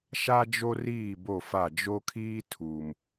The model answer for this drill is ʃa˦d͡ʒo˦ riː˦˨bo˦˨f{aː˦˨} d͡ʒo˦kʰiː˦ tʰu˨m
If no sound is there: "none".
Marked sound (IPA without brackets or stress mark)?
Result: a˦˨